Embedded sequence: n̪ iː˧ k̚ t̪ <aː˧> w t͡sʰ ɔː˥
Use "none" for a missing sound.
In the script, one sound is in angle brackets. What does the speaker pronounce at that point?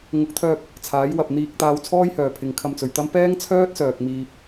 aː˧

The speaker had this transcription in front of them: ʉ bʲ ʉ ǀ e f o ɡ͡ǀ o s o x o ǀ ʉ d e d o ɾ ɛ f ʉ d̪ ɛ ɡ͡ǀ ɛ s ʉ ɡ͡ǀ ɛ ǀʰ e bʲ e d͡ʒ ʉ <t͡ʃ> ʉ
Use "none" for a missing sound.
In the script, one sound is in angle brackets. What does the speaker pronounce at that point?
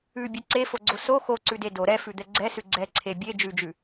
d͡ʒ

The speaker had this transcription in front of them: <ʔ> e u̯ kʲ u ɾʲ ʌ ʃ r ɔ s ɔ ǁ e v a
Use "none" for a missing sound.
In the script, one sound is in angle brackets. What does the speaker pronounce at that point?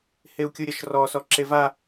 h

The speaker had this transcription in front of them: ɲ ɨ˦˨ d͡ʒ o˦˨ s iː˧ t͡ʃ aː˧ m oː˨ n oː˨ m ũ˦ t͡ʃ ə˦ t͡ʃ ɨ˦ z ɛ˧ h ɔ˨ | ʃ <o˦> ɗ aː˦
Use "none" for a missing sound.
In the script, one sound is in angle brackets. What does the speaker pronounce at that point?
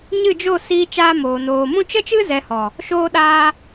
oː˦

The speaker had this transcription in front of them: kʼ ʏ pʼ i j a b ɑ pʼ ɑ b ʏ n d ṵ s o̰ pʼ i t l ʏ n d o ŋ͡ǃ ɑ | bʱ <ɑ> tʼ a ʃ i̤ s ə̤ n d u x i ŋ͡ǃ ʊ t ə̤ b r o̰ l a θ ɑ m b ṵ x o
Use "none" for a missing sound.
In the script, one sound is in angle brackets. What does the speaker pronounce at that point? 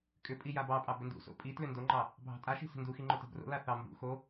ɑ̤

